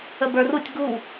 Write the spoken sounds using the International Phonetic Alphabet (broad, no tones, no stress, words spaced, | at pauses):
əbə˞rutʲ ɡu